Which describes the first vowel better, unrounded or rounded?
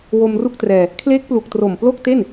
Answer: rounded